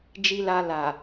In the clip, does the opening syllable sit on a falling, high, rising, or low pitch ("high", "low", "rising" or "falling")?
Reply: low